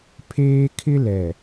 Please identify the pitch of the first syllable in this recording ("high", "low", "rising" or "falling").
high